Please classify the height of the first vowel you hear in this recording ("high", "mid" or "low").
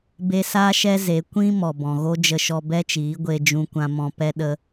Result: mid